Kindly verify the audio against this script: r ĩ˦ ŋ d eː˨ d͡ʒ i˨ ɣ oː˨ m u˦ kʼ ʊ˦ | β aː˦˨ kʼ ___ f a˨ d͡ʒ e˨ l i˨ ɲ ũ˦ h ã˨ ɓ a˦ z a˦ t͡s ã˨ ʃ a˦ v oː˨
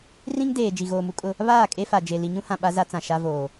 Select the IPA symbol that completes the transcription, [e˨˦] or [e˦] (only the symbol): e˦